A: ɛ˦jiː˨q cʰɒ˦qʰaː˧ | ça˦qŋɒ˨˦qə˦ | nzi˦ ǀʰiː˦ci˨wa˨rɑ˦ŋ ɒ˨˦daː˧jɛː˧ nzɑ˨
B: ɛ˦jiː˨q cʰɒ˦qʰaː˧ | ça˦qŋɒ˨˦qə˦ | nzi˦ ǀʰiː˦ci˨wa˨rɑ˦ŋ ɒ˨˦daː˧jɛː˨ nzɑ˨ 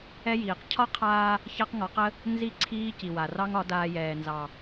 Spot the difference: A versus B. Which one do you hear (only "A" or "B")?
B